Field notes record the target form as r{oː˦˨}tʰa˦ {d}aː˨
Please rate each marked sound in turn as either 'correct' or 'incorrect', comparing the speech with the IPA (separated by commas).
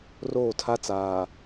correct, incorrect